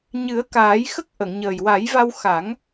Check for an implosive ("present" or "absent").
absent